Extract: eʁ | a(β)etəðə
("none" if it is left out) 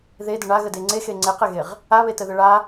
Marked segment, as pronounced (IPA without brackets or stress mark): β